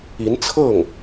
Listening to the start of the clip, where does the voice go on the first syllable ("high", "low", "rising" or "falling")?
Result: rising